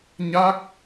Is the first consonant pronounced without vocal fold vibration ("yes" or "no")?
no